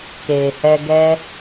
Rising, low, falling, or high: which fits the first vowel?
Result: low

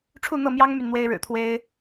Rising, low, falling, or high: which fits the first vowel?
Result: falling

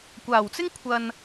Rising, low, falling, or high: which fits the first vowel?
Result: low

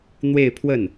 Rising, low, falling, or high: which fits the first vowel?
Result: falling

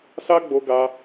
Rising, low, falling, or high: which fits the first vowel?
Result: high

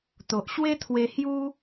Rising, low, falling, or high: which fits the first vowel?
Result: low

